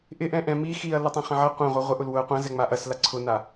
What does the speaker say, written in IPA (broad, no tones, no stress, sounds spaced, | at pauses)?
ʔ ɪ ʔ ɛ̃ ʔ ɛ̃ m i x i ɐ̯ l ɐ tˤ ɐ̃ χ ɐ̃ ʕ ɐ qʷ ɐ̃ ʁʷ ɛ ʁʷ ɪ ʔ ʊ l w ʊ ɐ̯ qʷ ɐ̃ z ɛ ŋ͡m a ʔ ɐ s l a ǀʰ ʊ n a